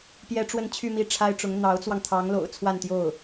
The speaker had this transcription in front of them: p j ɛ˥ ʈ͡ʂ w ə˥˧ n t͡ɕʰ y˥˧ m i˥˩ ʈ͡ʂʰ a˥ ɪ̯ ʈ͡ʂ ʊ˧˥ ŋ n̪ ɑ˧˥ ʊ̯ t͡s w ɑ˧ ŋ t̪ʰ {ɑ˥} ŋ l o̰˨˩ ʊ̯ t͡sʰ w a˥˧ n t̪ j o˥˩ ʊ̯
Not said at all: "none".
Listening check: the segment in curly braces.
ɑ˧˥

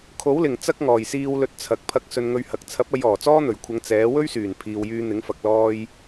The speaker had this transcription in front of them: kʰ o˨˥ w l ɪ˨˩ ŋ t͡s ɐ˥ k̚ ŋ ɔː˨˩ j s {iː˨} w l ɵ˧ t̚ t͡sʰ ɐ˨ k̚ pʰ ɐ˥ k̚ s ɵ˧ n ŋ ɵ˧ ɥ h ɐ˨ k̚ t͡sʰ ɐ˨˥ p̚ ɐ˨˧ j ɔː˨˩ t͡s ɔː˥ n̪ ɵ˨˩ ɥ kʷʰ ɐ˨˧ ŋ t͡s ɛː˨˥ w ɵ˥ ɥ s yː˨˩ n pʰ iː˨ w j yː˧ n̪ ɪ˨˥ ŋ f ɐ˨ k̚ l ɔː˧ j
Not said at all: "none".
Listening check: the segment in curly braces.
iː˧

